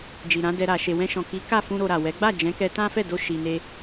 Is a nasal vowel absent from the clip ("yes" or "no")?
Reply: no